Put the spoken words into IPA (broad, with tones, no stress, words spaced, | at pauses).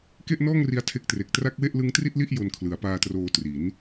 ke˥˩ʔnɔː˥˩ŋri˧a̯ tʰe˦˥k̚tre˨˩k̚ tra˦˥k̚we˥˩ʔlɯ˦˥ŋtri˥˩t̚ li˥˩ʔ jo˧nkʰlɯ˩˦a̯paː˧troː˧ tri˩˦n